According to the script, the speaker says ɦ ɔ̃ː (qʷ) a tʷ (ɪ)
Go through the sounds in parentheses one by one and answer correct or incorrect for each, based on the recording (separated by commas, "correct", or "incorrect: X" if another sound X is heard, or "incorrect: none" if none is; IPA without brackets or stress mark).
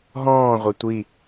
incorrect: ʁʷ, incorrect: i